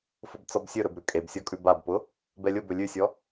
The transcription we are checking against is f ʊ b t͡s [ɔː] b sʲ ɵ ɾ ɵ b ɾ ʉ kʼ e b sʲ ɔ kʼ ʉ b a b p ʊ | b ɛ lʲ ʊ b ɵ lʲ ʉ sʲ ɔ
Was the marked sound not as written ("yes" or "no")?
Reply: yes